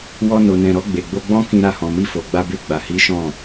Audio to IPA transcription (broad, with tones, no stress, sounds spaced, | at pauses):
w ɔ˧ n o˨ n ɛ̃˨ ɾ ɔ˧ ɡ͡b e˨ ɡ͡b o˧ ɡ͡b ɔ̃˦ k ĩ˧ ɾ a˧ h ɔ̃˨ m i˧ f o˨ ɡ͡b a˧ b e˧ ɡ͡b a˨ h i˨˦ ʃ ɔ̃˦˨